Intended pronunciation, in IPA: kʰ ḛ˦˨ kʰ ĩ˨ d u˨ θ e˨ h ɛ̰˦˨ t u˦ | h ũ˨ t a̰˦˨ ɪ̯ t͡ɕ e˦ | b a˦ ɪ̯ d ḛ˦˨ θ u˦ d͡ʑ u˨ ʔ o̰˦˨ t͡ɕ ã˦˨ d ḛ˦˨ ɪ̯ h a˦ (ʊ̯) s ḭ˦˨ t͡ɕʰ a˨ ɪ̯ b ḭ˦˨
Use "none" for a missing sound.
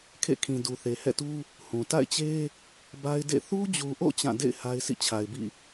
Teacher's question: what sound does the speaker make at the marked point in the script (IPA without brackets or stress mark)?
ɪ̯